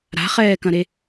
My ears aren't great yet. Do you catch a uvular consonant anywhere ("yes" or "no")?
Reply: yes